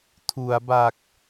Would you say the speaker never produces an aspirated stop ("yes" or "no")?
no